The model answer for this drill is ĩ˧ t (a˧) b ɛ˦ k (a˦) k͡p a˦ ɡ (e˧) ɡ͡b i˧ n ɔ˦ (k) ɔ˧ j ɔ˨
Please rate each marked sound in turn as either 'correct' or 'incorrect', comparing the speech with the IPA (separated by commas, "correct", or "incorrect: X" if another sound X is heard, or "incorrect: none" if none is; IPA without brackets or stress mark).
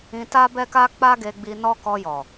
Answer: incorrect: a˦, correct, correct, correct